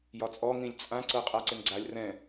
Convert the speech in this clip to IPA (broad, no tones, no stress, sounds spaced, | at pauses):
j ɒ t͡sʼ ɔ ŋ ĩ lʲ t͡sʼ ã ǀ ɤ qʼ a ǀ ɪ n ɡ͡ǀ a lʲ r ɛ̃